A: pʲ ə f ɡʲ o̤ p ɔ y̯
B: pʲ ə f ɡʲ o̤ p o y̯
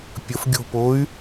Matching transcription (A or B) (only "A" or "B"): B